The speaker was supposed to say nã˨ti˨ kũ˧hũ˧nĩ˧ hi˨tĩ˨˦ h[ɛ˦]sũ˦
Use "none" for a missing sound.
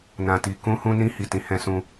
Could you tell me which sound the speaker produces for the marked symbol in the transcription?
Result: ɛ̃˦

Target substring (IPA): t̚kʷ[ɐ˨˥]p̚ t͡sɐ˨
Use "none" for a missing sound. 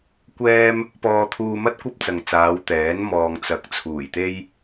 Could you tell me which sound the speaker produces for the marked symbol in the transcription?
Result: ɐ˥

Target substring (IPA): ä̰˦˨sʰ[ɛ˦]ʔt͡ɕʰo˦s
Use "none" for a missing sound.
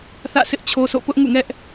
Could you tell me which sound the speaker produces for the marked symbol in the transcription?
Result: ɪ˦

